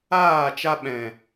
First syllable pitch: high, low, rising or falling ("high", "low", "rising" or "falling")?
falling